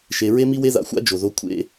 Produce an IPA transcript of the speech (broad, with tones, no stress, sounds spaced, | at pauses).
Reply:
ʃ e˨ ɹ e˦ m i˦ w e˦ ð a̰˨ xʷ a̰˦ d͡ʒ o˨ ð o˦ kʷʰ ḛ˦